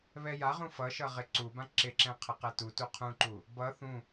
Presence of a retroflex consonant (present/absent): absent